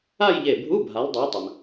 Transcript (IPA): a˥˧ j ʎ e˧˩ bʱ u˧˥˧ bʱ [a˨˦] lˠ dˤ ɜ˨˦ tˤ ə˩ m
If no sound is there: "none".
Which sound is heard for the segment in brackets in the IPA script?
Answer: a˨˦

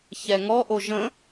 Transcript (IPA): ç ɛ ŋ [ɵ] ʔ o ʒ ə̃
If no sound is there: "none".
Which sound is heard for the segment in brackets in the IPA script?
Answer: ɔ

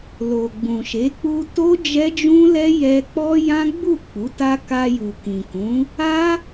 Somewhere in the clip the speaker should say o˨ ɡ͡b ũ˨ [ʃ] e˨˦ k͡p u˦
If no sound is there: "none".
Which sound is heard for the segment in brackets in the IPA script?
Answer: ʃ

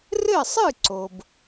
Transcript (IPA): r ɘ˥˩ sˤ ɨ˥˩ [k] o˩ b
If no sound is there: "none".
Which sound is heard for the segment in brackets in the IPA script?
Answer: ǀ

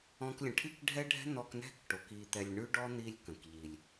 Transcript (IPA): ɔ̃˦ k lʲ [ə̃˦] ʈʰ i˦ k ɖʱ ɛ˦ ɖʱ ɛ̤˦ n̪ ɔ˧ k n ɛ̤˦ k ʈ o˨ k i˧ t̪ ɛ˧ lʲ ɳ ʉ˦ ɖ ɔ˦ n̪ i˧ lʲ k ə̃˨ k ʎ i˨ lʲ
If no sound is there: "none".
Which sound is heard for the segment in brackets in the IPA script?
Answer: ə̃˧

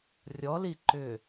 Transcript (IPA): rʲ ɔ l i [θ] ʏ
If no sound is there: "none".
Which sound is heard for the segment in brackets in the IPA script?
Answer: ǃ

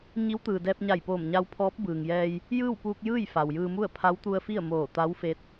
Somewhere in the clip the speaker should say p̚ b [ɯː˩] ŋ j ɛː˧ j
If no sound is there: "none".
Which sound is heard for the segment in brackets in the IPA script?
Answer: ɯː˩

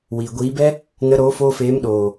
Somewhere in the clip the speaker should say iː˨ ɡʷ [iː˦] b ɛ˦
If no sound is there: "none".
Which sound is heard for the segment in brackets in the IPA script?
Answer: iː˨˦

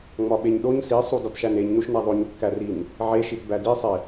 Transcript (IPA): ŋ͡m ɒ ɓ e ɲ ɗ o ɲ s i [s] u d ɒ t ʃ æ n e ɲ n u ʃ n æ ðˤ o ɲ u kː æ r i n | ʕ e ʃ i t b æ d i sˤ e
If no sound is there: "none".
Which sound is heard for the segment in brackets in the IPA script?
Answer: sˤ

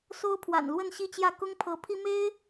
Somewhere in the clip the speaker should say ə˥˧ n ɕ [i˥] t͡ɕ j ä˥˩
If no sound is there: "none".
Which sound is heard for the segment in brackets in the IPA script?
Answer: i˥˧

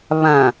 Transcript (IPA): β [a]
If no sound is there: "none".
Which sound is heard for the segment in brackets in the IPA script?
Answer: ã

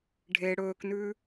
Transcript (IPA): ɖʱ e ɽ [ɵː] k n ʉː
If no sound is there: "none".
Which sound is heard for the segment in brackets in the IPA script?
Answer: ɵː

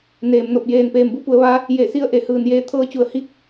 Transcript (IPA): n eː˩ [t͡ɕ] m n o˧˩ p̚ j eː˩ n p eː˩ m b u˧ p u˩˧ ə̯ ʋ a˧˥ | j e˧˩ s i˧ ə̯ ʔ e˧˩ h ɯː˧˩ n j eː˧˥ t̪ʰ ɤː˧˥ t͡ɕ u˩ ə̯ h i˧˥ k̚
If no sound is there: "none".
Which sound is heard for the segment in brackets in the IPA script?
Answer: none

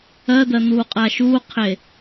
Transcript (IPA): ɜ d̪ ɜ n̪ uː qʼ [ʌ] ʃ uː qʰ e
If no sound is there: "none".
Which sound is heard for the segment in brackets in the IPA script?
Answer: a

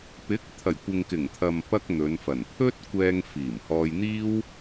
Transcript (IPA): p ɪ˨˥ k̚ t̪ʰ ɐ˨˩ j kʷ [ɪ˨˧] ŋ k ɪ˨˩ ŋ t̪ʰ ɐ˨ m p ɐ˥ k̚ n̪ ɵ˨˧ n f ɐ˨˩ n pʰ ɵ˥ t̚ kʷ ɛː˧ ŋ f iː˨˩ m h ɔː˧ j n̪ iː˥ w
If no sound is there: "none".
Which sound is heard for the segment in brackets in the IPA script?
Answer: ɪ˨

